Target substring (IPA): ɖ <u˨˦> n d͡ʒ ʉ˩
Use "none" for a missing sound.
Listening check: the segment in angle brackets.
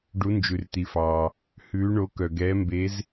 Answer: u˨˦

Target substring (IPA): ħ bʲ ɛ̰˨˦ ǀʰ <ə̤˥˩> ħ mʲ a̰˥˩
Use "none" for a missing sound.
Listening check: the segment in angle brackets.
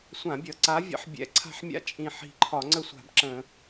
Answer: a̤˥˩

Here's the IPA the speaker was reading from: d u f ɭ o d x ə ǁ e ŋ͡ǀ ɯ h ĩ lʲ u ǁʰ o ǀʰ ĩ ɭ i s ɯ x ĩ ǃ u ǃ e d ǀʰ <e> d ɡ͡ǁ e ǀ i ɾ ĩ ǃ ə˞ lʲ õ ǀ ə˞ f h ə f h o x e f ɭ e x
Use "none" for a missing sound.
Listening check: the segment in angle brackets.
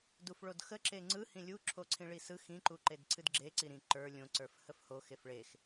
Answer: ɨ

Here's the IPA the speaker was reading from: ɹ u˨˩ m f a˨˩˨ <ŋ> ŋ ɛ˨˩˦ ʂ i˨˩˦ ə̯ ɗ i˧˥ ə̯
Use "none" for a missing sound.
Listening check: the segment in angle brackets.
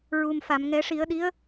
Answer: m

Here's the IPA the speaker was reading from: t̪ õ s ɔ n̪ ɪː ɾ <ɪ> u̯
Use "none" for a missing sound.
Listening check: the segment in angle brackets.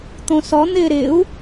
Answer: ɪ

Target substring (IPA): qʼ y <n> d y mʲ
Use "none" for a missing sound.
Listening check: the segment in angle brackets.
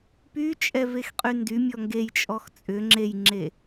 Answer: n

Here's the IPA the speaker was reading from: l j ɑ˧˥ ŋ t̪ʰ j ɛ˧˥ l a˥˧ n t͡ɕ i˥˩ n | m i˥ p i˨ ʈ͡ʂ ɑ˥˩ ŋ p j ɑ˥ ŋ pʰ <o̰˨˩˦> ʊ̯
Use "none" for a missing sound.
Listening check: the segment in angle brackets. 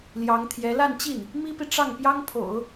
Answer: o̰˨˩˦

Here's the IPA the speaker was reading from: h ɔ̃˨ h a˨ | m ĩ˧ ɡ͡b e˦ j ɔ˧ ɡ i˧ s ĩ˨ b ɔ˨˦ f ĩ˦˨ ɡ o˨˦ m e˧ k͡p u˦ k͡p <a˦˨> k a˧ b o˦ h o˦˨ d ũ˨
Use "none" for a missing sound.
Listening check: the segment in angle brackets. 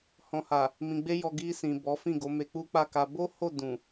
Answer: a˦˨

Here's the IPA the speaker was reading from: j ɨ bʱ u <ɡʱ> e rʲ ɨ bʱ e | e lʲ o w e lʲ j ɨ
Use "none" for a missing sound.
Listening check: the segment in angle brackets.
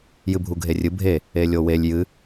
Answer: ɡʱ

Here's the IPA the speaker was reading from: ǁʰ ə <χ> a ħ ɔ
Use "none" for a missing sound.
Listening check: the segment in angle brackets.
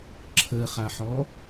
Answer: χ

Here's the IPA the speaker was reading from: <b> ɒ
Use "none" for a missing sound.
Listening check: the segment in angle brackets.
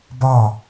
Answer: b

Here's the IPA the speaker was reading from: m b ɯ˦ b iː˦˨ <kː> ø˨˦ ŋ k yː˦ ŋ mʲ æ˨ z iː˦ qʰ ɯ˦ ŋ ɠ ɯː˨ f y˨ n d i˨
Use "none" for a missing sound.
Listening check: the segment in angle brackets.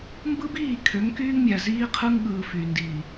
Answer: kʰ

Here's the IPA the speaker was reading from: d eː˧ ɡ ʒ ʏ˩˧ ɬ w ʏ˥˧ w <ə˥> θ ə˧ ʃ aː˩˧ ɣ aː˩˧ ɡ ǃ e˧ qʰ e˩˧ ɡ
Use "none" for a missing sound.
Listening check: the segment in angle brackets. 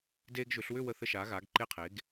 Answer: ə˧˩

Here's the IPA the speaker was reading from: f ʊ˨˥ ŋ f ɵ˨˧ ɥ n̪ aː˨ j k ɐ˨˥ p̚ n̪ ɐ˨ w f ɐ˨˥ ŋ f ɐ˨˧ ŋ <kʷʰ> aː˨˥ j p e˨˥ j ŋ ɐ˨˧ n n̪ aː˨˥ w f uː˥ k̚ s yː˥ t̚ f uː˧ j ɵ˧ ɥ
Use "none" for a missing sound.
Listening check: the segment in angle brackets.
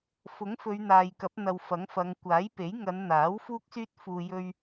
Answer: kʷ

